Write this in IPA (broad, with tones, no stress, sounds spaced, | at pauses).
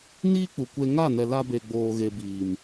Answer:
n iː˦ k͡p u˨ kʷ e˧ ŋ a˦˨ n ɛ˨ l a˧ b e˨ ɡ͡b oː˨ ɣ e˨ b iː˨ m